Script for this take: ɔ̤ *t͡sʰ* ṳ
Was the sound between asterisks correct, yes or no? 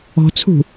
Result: yes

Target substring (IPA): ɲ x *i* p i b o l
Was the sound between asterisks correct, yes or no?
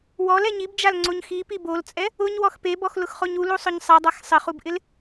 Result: yes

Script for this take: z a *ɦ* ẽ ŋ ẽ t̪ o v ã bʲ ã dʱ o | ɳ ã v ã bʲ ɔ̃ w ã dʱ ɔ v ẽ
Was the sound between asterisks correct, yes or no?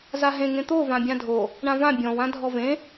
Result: yes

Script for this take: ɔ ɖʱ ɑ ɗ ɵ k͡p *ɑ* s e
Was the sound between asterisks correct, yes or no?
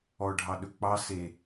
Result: yes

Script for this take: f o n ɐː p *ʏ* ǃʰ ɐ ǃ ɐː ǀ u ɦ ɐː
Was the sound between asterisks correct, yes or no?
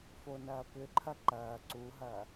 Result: yes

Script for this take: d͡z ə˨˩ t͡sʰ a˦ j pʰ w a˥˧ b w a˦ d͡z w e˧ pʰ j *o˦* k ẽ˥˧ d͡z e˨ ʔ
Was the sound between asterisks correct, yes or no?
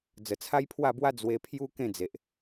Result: no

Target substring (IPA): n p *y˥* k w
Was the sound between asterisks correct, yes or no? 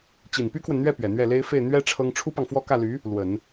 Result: yes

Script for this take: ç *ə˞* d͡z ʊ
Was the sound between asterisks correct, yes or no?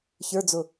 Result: yes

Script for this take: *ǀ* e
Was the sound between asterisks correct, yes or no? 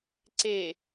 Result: yes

